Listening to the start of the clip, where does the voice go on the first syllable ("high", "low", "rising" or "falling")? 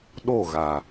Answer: falling